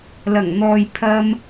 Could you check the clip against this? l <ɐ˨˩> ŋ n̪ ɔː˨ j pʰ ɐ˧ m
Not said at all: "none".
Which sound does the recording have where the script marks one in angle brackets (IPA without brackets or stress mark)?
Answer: ɐ˨˩